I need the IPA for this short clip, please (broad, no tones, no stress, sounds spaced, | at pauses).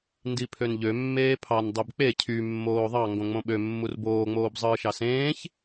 n d i pʰ ø n ʎ ø mː eː pʰ ɑ n dˤ e b k͡p e cʰ y mː oː ðˤ ɑ ŋ ɡ õ ŋ͡m õ ɓ ø mː u r b oː ŋ͡m oː b zˤ ɯː ʃ ɑ s ẽː ç